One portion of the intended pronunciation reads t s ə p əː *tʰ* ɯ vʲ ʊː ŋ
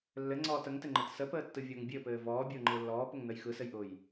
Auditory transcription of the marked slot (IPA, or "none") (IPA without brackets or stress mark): tː